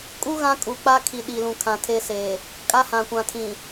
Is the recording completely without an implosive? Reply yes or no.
no